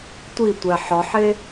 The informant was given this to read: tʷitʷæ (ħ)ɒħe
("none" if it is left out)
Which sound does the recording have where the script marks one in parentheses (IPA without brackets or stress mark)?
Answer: ħ